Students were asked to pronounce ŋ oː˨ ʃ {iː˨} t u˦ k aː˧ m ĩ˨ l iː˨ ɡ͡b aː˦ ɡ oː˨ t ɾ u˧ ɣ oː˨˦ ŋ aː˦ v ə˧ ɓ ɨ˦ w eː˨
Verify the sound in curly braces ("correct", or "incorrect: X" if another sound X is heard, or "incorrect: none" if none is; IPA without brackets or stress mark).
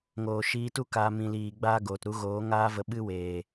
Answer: incorrect: iː˧